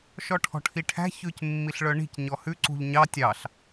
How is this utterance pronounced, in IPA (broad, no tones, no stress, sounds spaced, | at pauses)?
ʃ ɔ ʈʰ ɔ̤ ʈʰ i ʈʰ æ̤ ç ʉ c mː i ɬ ɭ œ ɳ i̤ c ɲ ɔ h ʉ ǀ ṳ ʎ ɲ ɑ tʲ ɑ ɬ